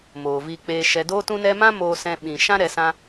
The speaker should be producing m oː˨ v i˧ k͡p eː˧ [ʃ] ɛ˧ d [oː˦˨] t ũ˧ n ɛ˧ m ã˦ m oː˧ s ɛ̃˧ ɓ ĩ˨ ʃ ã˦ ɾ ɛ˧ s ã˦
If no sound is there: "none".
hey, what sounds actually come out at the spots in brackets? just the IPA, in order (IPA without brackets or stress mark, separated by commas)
ʃ, oː˧